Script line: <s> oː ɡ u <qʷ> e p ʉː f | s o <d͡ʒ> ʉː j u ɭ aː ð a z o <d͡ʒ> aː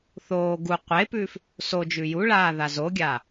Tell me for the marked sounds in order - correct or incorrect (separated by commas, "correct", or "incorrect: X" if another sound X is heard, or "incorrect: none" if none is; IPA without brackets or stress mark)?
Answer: incorrect: θ, correct, correct, incorrect: ɡʲ